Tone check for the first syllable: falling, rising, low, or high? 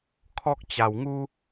high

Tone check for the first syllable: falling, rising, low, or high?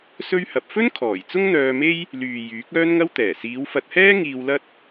high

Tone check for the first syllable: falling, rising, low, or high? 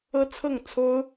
high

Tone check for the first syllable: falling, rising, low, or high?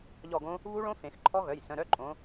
falling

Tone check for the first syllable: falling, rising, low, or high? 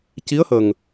rising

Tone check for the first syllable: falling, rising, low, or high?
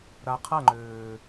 low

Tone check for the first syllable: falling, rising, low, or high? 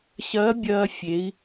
rising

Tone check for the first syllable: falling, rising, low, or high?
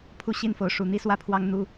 falling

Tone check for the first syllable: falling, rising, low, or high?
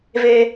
low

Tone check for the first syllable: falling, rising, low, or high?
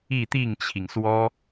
falling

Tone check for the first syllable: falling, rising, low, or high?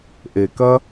low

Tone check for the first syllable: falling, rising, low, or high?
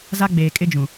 high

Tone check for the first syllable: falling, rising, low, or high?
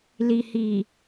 low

